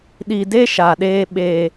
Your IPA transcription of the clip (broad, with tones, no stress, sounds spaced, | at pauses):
ɗ i˨ d e˦ ʃ a˨ ɗ eː˦ ɓ eː˦